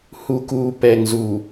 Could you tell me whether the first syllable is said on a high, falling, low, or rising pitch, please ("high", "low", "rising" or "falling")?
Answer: low